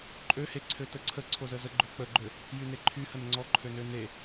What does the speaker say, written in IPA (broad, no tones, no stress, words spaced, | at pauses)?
ǃʼøheǀʰø təǀʰə ǀʰozəzə ɡ͡ǃøk͡pəɡ͡ǃø | jyneǃʰyhən ŋ͡ǀɔǃʰønø ne